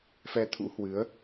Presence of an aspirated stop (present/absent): present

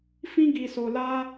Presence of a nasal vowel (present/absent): present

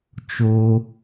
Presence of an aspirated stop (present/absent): absent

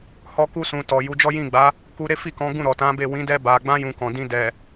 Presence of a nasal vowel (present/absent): present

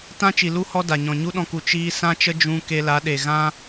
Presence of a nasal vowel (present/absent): present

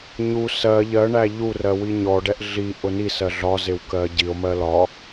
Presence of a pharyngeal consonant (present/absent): absent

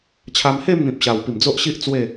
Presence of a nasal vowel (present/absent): present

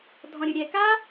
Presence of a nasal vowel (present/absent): present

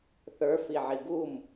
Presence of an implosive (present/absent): absent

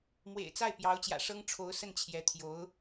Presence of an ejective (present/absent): absent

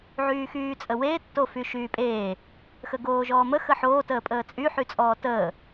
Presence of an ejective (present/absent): present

